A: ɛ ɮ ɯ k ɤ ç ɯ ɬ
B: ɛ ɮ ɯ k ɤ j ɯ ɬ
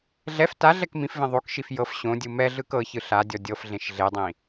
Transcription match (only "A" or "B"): A